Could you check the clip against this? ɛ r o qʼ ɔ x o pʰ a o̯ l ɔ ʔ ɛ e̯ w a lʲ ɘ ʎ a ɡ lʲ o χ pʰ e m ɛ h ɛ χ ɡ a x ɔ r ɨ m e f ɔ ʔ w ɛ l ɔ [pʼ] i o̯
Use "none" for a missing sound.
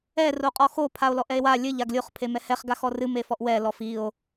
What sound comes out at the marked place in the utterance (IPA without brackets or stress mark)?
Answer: f